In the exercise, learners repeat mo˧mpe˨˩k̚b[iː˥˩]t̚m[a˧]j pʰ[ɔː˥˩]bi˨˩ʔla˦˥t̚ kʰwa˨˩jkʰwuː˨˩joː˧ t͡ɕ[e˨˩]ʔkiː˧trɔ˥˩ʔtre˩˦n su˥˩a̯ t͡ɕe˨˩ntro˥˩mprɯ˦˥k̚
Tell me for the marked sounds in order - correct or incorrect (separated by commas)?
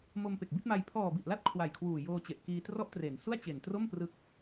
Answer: incorrect, correct, incorrect, correct